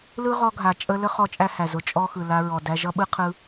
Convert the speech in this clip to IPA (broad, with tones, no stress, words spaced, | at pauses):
lɯ˦ʁɔ˧ɡʱa˨ t͡ʃʼə˧ lə˦χɔ˧ t͡ʃʼæ˦hæ˨ zʊ˧t͡ʃʼɔ˦ xɯ˨la˧ɹɔ˨ dæ˧ʒʌ˦ɓɯ˦ qʰɯ˧